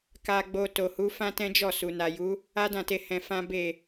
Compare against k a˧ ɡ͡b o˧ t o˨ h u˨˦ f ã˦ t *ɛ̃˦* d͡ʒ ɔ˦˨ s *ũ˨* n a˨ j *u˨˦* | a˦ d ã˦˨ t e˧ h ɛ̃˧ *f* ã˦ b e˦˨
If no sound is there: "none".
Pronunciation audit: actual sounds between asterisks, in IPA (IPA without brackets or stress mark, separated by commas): ɛ̃˦, u˨, u˨˦, f